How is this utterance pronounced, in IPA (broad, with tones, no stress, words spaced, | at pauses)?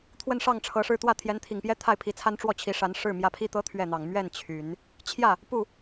t̪ʰwə˥˧nʂɑ˥˩ŋ ʈ͡ʂʰɤ˧˥ʂɻ̩˥˧ t̪wä˥˩t̪ʰjɛ˧˥nt̪ʰi˨˩ŋpjɛ˥ t̪ʰa˥˩ɪ̯pʰi˧˥t͡sʰa˥n ʈ͡ʂwɔ˥˩t͡ɕʰi˧˥ʂa˧˥n ʂɻ̩˥˩ mjä˧˥pʰi˥˩t̪ɤ˥ t̪ʰɥɛ˥˩n̪ɑ˨˩ŋ mɥɛ˥˩n t͡ɕʰy˨˩˦n | t͡ɕʰjä˥˩ | pu˥˩